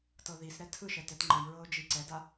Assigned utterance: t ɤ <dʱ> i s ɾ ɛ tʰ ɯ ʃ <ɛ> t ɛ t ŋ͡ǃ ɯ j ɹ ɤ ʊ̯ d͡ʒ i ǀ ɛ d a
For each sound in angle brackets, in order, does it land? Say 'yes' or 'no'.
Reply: no, yes

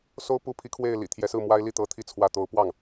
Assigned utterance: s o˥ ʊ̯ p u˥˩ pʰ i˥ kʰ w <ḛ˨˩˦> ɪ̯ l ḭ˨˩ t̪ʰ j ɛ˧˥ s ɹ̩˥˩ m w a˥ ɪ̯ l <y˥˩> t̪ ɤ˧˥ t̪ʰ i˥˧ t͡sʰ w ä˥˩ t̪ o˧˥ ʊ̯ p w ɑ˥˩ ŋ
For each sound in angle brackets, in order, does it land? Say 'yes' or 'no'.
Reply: no, no

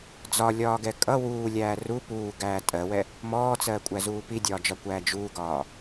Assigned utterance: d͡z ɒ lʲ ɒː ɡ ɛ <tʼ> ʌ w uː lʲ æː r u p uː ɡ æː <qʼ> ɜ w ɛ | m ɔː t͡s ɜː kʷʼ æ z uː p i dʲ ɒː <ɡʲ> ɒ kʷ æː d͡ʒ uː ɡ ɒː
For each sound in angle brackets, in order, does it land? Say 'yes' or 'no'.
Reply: no, no, no

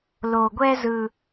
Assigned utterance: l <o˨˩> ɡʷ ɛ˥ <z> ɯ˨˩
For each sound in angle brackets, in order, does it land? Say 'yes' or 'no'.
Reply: yes, yes

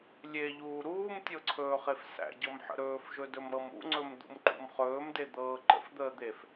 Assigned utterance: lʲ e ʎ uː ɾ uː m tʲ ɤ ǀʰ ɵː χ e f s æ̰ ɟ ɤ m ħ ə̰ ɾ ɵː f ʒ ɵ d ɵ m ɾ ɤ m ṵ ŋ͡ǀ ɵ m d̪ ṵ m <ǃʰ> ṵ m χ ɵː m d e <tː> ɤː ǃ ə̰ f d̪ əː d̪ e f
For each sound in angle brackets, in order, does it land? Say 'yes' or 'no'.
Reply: no, no

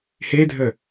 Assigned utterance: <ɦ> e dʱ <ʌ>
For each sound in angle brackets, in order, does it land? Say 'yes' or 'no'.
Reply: no, no

